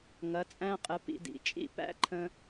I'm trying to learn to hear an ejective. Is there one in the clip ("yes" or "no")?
yes